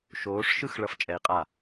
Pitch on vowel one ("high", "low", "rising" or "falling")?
rising